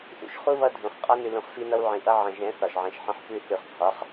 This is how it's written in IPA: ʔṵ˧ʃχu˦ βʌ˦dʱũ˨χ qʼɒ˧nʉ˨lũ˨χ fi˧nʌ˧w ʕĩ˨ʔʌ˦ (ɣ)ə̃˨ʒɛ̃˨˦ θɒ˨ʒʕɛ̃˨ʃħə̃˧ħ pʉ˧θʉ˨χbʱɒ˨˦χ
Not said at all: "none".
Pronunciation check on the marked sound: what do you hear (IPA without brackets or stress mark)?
ʕ